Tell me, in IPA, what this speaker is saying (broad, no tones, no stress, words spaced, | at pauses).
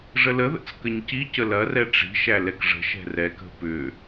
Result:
ʐələðə̰t͡s kəɲcicə lɐrɛ ʈ͡ʂi̤ʃæ lɛkʐə̤ʃɛ̤r ɛkə̤ pʏ